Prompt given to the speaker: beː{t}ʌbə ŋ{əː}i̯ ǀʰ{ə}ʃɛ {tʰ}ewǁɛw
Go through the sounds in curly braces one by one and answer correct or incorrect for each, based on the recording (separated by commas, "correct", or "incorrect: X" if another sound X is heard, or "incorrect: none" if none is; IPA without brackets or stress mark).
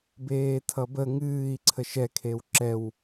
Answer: incorrect: tʰ, incorrect: ɨː, correct, incorrect: kʰ